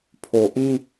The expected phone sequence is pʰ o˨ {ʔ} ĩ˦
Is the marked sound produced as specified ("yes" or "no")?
yes